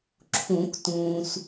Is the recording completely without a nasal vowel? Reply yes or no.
no